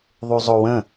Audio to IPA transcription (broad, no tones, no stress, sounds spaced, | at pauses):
ðˤ u zˤ o w ə̃